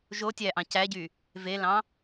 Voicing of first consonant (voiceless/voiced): voiced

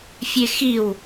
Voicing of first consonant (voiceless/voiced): voiceless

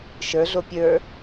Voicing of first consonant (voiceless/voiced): voiceless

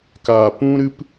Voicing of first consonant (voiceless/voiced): voiceless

